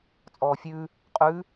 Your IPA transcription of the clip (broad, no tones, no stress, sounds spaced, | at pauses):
t͡sʼ ɔː fʲ ʉ | qʼ ʉ